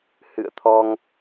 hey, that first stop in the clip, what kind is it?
aspirated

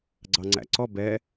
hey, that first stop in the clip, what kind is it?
click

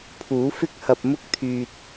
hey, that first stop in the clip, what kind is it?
aspirated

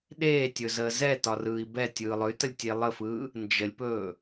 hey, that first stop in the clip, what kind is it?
implosive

